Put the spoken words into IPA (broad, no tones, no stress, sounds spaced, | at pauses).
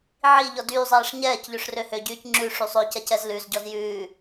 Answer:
ʕ i ʎ ɔ d yː zˤ ɛː ʂ ɲ ɛː c ʎ ø ʂ r ø h ø ɟ yː c ŋ͡ǁ ʉ ʂ y sˤ ø c ɛ c ɛ z l ʉ z ɟ ɔ z j ʉː